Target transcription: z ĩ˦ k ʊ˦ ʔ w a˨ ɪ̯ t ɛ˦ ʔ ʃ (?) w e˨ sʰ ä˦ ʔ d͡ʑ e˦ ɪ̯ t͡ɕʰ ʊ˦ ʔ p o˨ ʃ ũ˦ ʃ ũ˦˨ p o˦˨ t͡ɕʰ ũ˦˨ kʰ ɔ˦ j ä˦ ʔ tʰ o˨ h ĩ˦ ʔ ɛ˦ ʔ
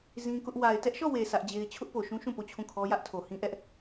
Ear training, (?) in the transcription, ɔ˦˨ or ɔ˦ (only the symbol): ɔ˦˨